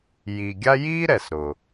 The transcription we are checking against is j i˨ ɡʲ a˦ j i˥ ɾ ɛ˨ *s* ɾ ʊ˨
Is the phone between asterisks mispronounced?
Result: no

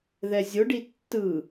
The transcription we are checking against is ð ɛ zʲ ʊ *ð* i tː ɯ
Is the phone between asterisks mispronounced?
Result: yes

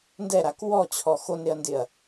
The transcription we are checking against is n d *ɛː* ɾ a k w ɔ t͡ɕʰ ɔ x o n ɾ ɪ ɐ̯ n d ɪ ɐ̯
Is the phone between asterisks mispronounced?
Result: yes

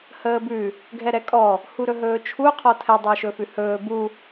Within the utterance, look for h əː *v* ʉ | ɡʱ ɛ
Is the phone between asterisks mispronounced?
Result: yes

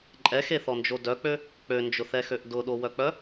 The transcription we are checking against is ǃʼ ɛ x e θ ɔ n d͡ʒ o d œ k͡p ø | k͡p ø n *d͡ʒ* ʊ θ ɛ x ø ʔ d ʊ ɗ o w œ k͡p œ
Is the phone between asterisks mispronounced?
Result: no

